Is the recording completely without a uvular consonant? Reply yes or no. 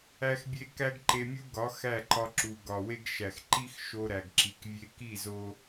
yes